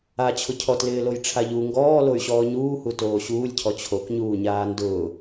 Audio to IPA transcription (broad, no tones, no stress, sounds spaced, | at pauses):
a t͡ɕʰ ʊ cʰ ɔ t l ɪː l o j ʈ͡ʂʰ a ʎ u ŋ ɡ ɔː l o y̯ ɕ ɔː ɲ uː h u t oː ɕ uː lʲ cʰ ɔ t͡ɕʰ o k ɲ uː ɲ aː n d ʊː